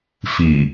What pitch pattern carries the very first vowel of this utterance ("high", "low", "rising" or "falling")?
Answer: low